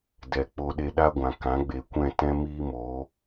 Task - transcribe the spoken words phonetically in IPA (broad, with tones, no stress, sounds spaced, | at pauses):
d ɛ˨ k͡p o˧ ɗ e˧ ɗ a˦ ɡʷ ã˨ k ã˨˦ ɡ͡b e˨ kʷ ɛ̃˦˨ t ɛ̃˦ m iː˦ m o˨˦